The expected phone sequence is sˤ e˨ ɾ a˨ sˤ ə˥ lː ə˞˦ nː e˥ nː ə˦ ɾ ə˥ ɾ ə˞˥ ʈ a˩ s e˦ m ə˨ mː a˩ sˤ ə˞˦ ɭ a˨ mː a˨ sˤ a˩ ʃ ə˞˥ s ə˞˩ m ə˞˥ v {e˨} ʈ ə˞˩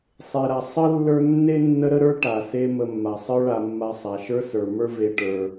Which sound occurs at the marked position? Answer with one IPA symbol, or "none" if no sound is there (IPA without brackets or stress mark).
e˨